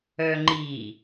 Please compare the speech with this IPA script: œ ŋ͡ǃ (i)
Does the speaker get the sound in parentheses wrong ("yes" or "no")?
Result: no